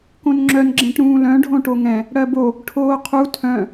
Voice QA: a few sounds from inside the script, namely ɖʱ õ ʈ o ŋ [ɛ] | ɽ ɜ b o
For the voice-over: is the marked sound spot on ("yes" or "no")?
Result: no